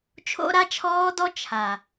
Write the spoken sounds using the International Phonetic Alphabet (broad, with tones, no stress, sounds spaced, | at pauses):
t͡ʃʰ o̰˦ ɾ a˦ t͡ʃʰ ɔː˦ d ɔ˦ t͡ʃʰ a˨